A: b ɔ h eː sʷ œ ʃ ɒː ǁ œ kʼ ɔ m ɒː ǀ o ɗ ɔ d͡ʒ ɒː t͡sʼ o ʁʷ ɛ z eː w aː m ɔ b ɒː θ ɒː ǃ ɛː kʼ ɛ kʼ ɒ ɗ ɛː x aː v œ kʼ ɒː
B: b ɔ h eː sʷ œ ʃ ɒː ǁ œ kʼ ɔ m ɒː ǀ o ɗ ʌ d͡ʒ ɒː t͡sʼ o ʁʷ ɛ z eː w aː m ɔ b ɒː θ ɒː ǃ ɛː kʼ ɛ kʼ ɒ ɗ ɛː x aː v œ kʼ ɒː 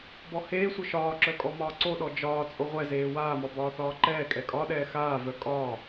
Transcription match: A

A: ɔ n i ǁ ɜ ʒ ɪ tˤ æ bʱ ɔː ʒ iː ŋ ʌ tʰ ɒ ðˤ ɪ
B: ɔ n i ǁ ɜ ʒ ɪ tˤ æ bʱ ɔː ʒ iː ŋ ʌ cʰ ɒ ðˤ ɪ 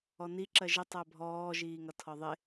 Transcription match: A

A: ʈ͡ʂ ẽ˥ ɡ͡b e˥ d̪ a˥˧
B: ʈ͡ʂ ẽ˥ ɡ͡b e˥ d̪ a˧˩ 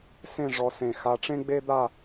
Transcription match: A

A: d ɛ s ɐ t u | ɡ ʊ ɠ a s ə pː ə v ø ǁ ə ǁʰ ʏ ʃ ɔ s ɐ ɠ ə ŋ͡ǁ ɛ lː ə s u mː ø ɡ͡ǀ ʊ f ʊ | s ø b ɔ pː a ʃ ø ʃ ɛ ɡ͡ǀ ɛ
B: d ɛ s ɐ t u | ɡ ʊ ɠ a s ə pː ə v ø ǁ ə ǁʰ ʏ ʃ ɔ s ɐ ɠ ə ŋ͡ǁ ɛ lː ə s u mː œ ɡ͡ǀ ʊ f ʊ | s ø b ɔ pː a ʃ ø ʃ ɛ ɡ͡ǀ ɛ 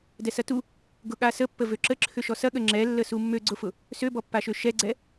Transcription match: A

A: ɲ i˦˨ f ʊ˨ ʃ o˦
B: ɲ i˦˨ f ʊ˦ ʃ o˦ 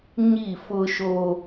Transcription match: B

